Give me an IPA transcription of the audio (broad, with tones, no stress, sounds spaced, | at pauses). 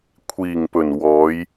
kʷʰ iː˨˩ ŋ p ɵ˨˩ n w ɔː˨˧ j